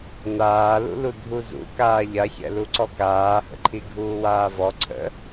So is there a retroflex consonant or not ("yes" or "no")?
no